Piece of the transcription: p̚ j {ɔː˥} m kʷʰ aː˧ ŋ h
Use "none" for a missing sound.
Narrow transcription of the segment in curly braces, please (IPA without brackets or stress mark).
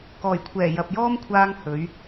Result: ɔː˥